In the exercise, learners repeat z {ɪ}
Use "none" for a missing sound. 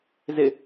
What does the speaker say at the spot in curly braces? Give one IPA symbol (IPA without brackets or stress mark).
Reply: ɪ